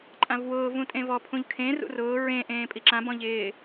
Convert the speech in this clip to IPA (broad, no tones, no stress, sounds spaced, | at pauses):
ǃʼ ã v w ʊː v ũ tʼ ẽ v ɔ pʰ ũ ʎ kʰ ẽ r ṵ r ʊː ɹ ẽ ʔ ẽː pʼ i ǁ ã b ɔ̃ ʎ ɪː